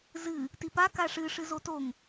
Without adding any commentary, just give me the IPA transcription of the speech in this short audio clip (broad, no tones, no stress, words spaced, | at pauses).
zɨ | tipa kaʂɨ ʂɨzotoŋ